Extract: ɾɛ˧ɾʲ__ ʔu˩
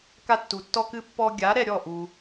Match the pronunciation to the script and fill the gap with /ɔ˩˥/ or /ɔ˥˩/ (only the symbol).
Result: ɔ˥˩